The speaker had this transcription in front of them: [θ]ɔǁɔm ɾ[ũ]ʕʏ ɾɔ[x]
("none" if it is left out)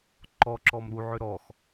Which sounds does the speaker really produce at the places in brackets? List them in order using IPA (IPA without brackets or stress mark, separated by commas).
ǃ, u, x